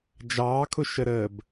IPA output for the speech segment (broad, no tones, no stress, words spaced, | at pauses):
d͡ʒɑːkʰʊʃəɾəːb